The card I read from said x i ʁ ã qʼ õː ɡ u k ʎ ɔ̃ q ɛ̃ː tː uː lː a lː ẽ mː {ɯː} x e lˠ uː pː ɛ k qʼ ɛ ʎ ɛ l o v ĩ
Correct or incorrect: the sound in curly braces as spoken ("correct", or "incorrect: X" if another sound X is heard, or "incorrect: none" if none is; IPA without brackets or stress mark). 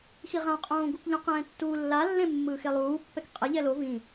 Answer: correct